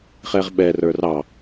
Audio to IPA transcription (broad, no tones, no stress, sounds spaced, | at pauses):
χ ɛ ʁ ɓ ɛ r ə˞ r ɑ